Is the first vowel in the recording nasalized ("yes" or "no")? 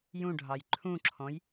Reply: yes